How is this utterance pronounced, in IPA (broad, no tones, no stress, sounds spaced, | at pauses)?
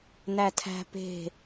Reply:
n æ tʰ æ̤ p e̤